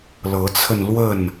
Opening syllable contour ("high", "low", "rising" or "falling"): rising